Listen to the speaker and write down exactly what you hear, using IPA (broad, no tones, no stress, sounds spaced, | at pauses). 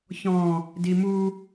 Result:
ç ɔ̃ | d i m u